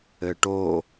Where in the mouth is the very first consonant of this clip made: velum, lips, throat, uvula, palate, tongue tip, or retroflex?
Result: retroflex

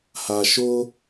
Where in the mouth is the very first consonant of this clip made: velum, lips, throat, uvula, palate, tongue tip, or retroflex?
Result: throat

